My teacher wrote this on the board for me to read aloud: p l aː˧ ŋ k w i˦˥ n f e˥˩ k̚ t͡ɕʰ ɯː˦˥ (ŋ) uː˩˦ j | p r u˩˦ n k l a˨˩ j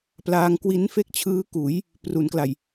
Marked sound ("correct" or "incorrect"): incorrect